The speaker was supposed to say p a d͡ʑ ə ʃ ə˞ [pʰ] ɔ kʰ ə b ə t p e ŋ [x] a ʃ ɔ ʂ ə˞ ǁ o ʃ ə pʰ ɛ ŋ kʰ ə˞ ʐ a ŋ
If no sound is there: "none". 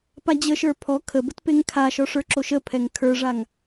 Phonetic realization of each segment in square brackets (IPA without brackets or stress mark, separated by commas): pʰ, kʰ